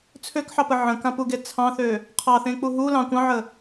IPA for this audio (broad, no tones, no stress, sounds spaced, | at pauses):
t͡sʰ ø k ħ ɑ p ə ʕ ə̃ k ã p u ɡ e t͡sʰ ɑ̃ θ ø | qʰ ɑ θ ẽ k͡p u ɦ u l ɑ̃ kʷ ɑ̃ ʕ ə